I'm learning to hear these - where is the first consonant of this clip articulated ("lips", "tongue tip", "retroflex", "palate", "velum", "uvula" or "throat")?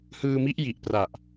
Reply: throat